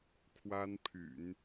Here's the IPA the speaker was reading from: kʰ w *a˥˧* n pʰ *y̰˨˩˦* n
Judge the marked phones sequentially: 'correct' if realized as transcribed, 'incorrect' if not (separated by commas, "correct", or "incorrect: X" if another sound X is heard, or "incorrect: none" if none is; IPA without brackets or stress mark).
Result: incorrect: a˥, correct